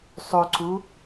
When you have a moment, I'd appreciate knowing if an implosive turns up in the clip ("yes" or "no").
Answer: no